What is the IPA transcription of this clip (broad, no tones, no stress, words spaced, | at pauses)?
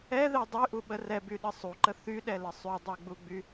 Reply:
ɛðɛ dˤyʔuɓə rɛbyɗə sˤuǃə θyɗɛlə sˤydˤɛɡ͡buɡ͡by